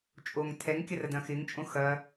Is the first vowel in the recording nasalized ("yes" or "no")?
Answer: no